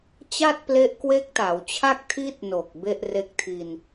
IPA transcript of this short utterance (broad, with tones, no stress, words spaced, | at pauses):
t͡ɕa˥˩t̚ple˦˥ʔ kwe˦˥k̚ta˩˦wt͡ɕʰa˥˩k̚ tʰi˦˥t̚no˨˩k̚ be˥˩ʔre˦˥k̚tʰi˧n